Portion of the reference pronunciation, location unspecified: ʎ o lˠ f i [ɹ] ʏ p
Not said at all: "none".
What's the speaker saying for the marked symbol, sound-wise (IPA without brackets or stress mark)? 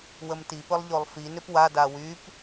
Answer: n